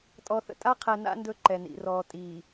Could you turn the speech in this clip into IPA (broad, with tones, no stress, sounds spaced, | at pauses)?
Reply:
tʼ ɔ˨ θ ə̰˨ tʼ a˦ qʰ ɛ˨ n a̰˦ n d ɵ˦ ǃ ɛ˨ n ḭ˨ r ɔː˨ tʼ iː˨